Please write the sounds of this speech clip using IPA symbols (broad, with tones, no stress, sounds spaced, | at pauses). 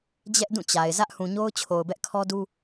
d͡ʑ ɛ˦ ʔ d ũ˦˨ t͡ɕ a˨ ɪ̯ z ä˦ ʔ h ũ˨ ɲ o˦ ʊ̯ t͡ɕʰ o˨ ʊ̯ b ɛ˦ ʔ kʰ ɔ˦ d u˦